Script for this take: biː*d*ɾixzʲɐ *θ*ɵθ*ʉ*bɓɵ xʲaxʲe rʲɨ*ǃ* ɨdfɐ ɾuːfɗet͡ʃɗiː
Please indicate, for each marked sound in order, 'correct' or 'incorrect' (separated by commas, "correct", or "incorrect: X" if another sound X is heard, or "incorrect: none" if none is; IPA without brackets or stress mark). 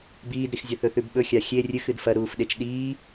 correct, correct, correct, incorrect: x